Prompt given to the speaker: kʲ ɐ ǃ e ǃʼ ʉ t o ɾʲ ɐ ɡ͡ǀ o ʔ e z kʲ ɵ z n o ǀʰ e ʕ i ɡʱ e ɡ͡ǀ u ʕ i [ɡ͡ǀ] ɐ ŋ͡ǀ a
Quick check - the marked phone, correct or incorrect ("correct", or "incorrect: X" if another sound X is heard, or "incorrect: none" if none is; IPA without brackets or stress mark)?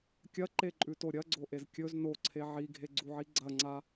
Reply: correct